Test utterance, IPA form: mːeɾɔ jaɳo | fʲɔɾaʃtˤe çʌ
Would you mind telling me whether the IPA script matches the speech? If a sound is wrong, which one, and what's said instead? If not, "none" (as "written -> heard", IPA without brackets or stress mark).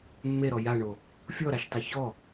ʌ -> ɔ